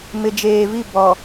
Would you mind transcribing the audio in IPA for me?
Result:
m ɪ˨ d͡ʒ eː˨ v i˦˨ b ɔ˨

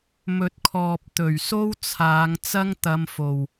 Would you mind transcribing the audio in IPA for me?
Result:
m ɵ˨ t̚ kʰ ɔː˨ p̚ t̪ ɵ˨˩ ɥ s o˥ w t͡sʰ aː˨˧ ŋ t͡s ɐ˥ ŋ t̪ ɐ˧ m f o˨ w

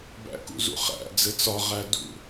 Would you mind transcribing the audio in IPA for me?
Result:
b æ̰ k ṵ z ṵ χ æ̰ d͡z ɘ t͡s ɒ ʁ æ d ṵ

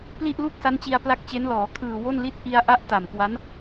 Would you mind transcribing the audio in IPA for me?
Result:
p l i˥˩ ʔ l u˥˩ k̚ s a˦˥ n t͡ɕ i˧ a̯ p l a˦˥ k̚ t͡ɕ e˦˥ n l ɔː˩˦ kʰ ɯː˨˩ w o˥˩ n l i˥˩ t̚ ʔ i˧ a̯ ʔ a˦˥ ʔ t a˨˩ m k w a˦˥ n

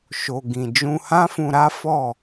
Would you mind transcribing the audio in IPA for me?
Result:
ʃ o˨ ɡ ĩ˨ d͡ʒ ũ˧ h ã˦ f ũ˧ ɾ a˦ f ɔ˦˨

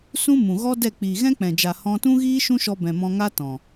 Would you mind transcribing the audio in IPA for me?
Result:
s ũ˦ m ũ˨ ɣ ɔ˦ d ɛ˦˨ k͡p iː˨ ɣ ɛ̃˦ k͡p ɛ̃˨ d͡ʒ a˨ h ɔ̃˧ t ũ˦ ɣ iː˦ ʃ ũ˦ ʃ ɔ˧ b ɛ̃˨ m ɔ̃˧ ŋ a˧ t ɔ̃˨

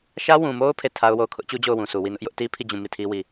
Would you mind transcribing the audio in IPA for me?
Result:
ʃ ä˦ w ũ˨ m o˦ ʊ̯ pʰ e˦˨ tʰ a˦ ʊ̯ w o˦˨ ʊ̯ kʰ ʊ˦ ʔ t͡ɕ u˦ d͡ʑ o˦˨ ʊ̯ w ũ˨ sʰ u˨ w i˦˨ n ʊ˦ ʔ j ʊ˦ ʔ t i˦ pʰ i˦˨ d͡ʑ ũ˦˨ m i˦˨ tʰ i˦ w i˦˨

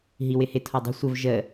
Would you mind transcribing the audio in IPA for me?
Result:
ɦ i w ɪ h ɪ tʰ ɔ dˤ ə̤ sʷ ə v ʒ ə

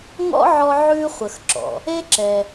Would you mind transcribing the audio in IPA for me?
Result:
ŋ ɔ̰˥ ʕ ɔ˦ ʕ ʉ˦ χʷ ə˨ x ǁ ɔ̰˩ | e˥ ǁ ɛ˨

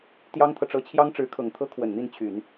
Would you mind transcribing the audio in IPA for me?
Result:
t̪ j ɑ˥ ŋ t̪ʰ ɤ˨ ʈ͡ʂ ɤ˥˩ t͡ɕʰ j ɑ˥ ŋ ʈ͡ʂ ɻ̩˧˥ kʰ ɤ˨˩ ŋ t̪ʰ ɤ˥ kʰ w ə˨˩ n n̪ i˥˩ n t͡ɕʰ y˨˩˦ n

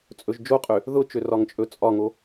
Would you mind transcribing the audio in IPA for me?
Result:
t͡sʼ ɵ ʒ d͡ʒ o qʼ ø | ð ʊ t͡ʃ ø r ɒ ŋ t͡ʃʼ ɵ t͡sʼ ɒ ŋ o

